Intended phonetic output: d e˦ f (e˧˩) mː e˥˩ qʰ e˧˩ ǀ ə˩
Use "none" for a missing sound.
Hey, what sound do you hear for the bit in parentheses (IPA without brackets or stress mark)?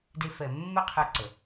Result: ɛ˧˩